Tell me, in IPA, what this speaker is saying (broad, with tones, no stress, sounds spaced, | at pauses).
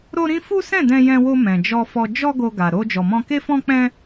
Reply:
ɾ o˦ ɾ ĩ˦ f u˦ s ɛ̃˦˨ d ɛ̃˧ j ɛ̃˧ w o˧ m ɛ̃˨ d͡ʒ ɔ˧ f ɔ˧ d͡ʒ ɔ˦ ɡ o˧ ɡ a˨ ɾ o˧ d͡ʒ ɔ˨ m ɔ̃˧ k e˦ f ɔ̃˦ k͡p ɛ̃˦